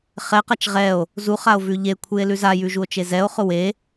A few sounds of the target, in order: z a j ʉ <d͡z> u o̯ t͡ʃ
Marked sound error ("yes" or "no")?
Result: yes